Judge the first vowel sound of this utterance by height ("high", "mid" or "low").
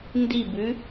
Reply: high